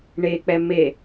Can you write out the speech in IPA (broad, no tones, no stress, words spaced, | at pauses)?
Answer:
ɳek͡pɛ me